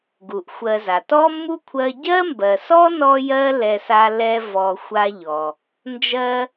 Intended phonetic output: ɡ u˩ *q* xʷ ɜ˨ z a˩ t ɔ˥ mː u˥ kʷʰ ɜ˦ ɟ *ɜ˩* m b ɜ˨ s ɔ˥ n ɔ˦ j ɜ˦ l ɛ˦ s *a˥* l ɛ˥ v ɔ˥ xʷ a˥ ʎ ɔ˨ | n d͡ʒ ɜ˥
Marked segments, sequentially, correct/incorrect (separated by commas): incorrect, incorrect, correct